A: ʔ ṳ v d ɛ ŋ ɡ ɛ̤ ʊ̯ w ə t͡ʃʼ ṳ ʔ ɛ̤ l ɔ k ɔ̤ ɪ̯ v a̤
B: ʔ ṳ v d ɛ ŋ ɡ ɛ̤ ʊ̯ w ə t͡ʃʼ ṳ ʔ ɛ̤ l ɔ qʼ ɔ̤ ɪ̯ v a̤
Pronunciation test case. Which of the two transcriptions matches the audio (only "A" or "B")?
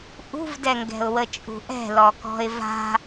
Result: A